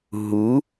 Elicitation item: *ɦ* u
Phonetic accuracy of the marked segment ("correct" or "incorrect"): correct